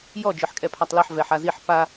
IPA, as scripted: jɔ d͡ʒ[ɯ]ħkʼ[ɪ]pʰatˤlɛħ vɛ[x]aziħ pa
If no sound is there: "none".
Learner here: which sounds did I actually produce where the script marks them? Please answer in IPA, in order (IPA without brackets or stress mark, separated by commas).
ɯ, ɛ, ħ